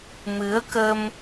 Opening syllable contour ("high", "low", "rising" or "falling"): rising